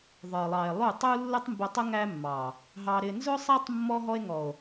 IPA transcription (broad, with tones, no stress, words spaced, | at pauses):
ðˤə˞˨lˠɑ˨e̯ lˠu˦˨ tˤu˦lːʊ˦tˤ mbʊ˧tˤʊ˦ ŋæ˦mːɑ˨ | ɦɑ˧ɾɪ˧ nzʊ˦sˤæ˦tˤ mːɔ˦ɦɔ˦e̯ ŋɔ˨o̯